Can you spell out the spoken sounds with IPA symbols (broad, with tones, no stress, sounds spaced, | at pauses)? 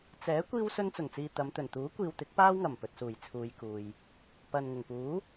t͡s ɛː˨˥ kʷ iː˧ w s ɵ˧ n t͡s ʊ˨˩ ŋ t͡s iː˨ t̪ ɐ˨˧ m t̪ ɵ˨˩ n t̪ uː˨˥ kʷ iː˨ w t̪ ɪ˨˥ k̚ p aː˥ w ŋ ɐ˨˩ m p ɵ˨ t̚ s uː˨˩ j t͡sʰ uː˨ j k uː˨ j | p ɐ˨ n ŋ ʊ˨˩ ŋ p uː˨˥